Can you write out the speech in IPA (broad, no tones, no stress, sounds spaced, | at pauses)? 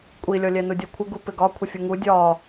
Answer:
kʷʼ i lʲ ɔ lʲ ɛ n u dʲ ɔ kʷʰ ɪ ɡ u p ɪ ɡ ɒ kʷʰ ɪ fʲ u ŋ u dʲ ɒ